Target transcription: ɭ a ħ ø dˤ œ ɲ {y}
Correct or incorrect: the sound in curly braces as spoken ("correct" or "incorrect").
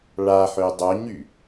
correct